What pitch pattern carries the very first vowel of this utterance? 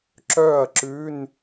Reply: falling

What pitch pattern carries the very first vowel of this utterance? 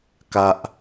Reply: high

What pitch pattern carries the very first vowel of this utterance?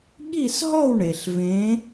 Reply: falling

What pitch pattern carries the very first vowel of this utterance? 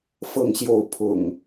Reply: falling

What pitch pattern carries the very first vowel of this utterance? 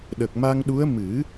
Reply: low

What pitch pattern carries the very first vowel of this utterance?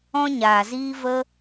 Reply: high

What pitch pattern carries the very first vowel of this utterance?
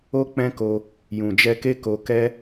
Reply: high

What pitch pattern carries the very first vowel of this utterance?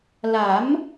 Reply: rising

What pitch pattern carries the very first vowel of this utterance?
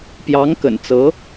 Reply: rising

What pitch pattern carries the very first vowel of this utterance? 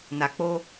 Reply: low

